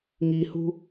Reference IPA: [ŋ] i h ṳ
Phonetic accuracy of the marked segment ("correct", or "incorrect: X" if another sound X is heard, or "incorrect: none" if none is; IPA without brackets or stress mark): correct